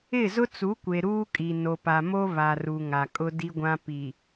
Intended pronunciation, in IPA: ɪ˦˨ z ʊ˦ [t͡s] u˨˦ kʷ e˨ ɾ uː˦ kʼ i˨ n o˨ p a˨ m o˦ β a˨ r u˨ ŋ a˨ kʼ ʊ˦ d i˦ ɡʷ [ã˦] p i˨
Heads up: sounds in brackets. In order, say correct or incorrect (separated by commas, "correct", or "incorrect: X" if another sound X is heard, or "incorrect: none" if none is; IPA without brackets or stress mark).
correct, correct